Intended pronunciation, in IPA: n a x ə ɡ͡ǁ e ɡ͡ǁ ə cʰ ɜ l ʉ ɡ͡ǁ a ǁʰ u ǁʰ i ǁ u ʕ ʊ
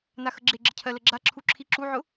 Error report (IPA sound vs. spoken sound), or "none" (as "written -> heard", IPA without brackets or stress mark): ʉ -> ə